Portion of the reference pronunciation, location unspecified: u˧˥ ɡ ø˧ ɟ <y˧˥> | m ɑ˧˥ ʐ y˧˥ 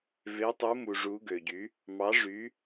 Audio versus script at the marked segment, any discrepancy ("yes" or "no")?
no